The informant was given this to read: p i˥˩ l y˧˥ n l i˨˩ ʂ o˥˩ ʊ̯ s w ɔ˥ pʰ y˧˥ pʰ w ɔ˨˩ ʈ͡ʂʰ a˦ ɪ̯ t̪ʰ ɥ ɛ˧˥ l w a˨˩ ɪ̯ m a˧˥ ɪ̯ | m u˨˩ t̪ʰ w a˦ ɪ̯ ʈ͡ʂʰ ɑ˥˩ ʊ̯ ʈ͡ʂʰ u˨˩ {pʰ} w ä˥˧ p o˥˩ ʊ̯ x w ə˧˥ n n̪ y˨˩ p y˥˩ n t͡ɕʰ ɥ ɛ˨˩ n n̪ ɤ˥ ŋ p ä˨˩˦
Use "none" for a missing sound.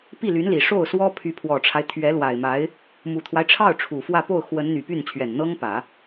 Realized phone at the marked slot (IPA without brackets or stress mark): f